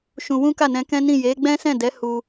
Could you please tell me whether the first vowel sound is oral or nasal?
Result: nasal